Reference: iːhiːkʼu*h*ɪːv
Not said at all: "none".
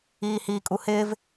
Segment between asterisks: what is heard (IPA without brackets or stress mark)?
h